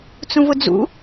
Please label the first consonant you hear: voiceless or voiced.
voiceless